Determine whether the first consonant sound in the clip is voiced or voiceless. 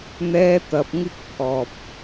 voiced